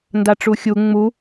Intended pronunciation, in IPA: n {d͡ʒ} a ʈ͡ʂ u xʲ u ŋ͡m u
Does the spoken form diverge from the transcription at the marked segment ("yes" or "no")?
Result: yes